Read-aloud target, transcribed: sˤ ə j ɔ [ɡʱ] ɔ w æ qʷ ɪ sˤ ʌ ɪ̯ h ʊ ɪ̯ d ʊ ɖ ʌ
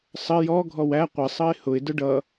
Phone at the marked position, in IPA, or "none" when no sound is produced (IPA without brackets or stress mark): ɡʱ